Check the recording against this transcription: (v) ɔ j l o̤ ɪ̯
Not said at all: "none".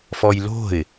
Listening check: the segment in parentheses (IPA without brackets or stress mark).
f